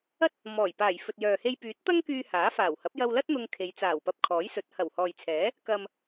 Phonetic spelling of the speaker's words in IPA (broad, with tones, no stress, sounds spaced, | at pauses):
ɐ˥ t̚ | m ɔː˨˩ j p aː˨˩ j f ɵ˨ t̚ j œː˨ h e˧ j p yː˨˥ t̚ t̪ ɐ˥ ŋ k yː˧ h aː˨˥ f aː˨˩ w h ɐ˨˥ p̚ j ɐ˧ w l ɐ˥ t̚ n̪ ʊ˧ ŋ kʰ e˨˧ j t͡s aː˨˩ w p ɐ˧ p̚ kʰ ɔː˨˥ j s ɵ˨˥ t̚ h ɐ˨˩ w h ɔː˨ j t͡sʰ ɛː˨˥ | k ɐ˨ m